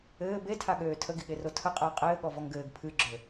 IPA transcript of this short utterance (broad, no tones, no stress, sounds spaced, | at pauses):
ɘː b e tʰ a ɠ øː tʰ ə ɡ i ɠ e r o tʰ ə qʼ əː qʼ ɘː ɠ ɔ v ɔ ŋ ɡ ɘː ɡ pʰ ɨ ɡ͡ǁ ø